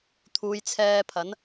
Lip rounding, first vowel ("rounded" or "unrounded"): rounded